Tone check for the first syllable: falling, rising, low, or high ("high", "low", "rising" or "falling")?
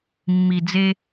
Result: low